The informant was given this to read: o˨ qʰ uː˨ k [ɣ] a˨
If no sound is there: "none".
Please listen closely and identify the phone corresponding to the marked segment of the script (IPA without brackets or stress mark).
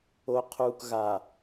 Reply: ɣ